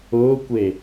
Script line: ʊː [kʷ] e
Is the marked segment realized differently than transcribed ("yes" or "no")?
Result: no